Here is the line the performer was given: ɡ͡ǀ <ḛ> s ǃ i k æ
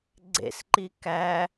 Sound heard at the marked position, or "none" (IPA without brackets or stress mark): ḛ